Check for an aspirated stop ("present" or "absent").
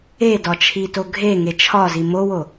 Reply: present